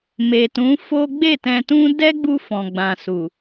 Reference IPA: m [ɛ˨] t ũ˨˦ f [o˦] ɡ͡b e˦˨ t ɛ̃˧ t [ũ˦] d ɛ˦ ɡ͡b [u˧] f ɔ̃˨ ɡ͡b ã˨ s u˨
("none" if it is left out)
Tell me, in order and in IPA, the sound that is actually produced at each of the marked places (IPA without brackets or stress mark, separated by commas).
e˨, o˦, ũ˦, u˧